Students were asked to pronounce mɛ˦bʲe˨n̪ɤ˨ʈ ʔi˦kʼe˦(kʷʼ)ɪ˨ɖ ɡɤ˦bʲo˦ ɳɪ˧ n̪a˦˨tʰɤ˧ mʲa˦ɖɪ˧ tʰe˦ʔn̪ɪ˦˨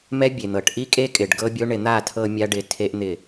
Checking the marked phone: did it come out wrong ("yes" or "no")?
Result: yes